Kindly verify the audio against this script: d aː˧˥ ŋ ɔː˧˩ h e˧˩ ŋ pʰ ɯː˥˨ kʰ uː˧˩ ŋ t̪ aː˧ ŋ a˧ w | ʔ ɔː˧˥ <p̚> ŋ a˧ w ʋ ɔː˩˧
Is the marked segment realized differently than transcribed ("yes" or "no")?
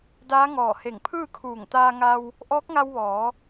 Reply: yes